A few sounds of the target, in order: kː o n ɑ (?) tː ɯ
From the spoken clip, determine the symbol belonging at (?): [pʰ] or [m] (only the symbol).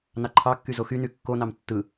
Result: m